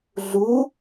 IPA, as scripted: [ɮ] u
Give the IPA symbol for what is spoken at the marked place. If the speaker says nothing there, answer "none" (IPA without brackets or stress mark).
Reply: ɮ